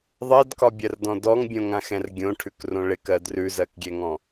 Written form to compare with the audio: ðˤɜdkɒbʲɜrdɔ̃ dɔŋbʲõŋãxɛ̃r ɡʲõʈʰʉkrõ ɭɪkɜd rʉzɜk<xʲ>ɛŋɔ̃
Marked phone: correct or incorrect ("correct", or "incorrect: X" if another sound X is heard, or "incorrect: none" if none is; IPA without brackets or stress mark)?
incorrect: ɡʲ